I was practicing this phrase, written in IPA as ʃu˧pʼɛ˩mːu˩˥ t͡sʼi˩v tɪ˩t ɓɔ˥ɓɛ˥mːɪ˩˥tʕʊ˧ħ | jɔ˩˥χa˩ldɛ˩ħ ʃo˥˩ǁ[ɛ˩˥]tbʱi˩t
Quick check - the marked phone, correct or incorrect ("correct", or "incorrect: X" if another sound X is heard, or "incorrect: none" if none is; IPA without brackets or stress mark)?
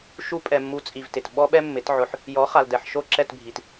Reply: incorrect: ɛ˥˩